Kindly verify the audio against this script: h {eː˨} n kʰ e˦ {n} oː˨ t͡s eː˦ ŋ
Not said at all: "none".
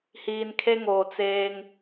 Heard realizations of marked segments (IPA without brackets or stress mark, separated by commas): iː˨, ŋ